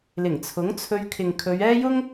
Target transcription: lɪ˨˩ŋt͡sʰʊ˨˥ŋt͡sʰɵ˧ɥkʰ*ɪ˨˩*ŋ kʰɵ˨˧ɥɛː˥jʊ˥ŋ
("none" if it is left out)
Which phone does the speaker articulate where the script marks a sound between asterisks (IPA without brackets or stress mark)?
ɪ˨